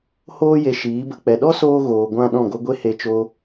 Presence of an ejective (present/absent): absent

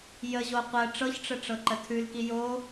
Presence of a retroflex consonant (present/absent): present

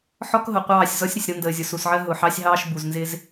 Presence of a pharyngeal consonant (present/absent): present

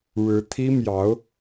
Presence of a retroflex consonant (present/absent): present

